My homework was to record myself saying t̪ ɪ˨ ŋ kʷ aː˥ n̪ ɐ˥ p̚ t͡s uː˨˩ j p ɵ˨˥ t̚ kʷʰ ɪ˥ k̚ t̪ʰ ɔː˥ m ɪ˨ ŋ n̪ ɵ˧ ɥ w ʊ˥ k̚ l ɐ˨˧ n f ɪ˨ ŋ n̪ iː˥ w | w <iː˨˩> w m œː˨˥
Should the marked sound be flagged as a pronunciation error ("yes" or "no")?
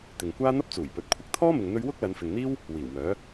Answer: no